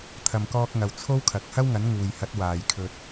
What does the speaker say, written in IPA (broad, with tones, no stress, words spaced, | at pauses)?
t̪ʰɐ˨mkɔː˧k̚ŋɐ˨w t͡sʰo˥wkʰɐ˨k̚ hɐ˥wŋɐ˨˥n ŋuː˨jhɐ˨˥t̚ waː˨jkʰɵ˧t̚